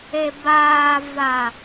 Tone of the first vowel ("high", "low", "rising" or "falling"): low